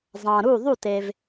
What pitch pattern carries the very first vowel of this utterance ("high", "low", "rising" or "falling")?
low